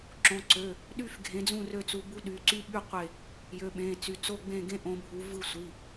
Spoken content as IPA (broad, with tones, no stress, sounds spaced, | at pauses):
ǁ õ˩˧˩ ǀ ø˩˧˩ | ɗ y˥˨ f ɡʱ ẽ˨˦ d͡z ũ˥˨ r ø˥˨ t͡s u˨˦ b u˦˥ ɗ y˩˧˩ ǀ y˦˥ ɓ y˥˨ qʷ e˥˨ | j ø˩˧˩ ɓ ẽ˩˧˩ t͡s y˩˧˩ t͡s o˥˨ ɡ͡b ẽ˥˨ ɡ ẽ˦˥ ʔ õ˨˦ bʱ u˨˦ v ɯ˥˨ sʷ i˩˧˩